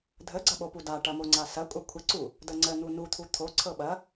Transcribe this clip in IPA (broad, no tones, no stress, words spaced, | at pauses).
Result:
dʱəɡ͡ǀɐɓo pudaʈɐ moŋ͡ǀasɐ kʷʼɐkʷʰəǀu | dəŋ͡ǀən̪u nut̪ʰu t̪ʰo ǀʰɤɓɐ